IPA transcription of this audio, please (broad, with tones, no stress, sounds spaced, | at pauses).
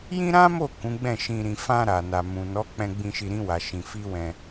j ĩ˦ ɾ ã˦ m o˦˨ k ũ˨˦ ɡ͡b ɛ̃˦˨ ʃ ĩ˧ ɾ ĩ˧ f ã˧ ɾ a˨ n a˨ m ũ˨ n ɔ˨˦ k͡p ɛ̃˧ ɡ͡b ĩ˧ ʃ i˧ ɾ ĩ˧ w a˨ ʃ ĩ˧ f i˦ w ɛ̃˧